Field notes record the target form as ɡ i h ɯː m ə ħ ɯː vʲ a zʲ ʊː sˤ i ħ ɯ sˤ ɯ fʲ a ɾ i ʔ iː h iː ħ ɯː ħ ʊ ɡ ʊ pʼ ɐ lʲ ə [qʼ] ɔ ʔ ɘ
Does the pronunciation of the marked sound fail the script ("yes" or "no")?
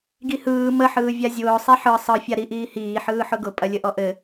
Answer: yes